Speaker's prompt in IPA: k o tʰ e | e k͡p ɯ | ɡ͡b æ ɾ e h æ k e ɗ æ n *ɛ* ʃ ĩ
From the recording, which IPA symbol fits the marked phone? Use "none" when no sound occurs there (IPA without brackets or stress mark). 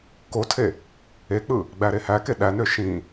ø